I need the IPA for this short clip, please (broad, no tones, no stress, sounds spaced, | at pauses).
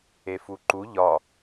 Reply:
e f u ǃ u ʎ ɒ